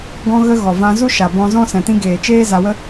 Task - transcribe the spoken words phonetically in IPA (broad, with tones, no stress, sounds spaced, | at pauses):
ɡ ɔ̃˧ ɣ ə˧ ɣ ɔ˨ v ã˧ z u˦ ʃ a˨ b ɔ̃˧ z ɔ̃˦ s ɛ̃˨ t ĩ˧ ɡ eː˨ t͡ʃ eː˦ z a˧ w ə˦